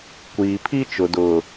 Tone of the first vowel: low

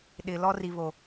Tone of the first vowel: low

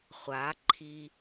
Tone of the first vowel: rising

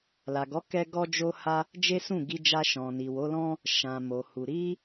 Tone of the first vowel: low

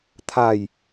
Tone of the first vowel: falling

